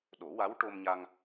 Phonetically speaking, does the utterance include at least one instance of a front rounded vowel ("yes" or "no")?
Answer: no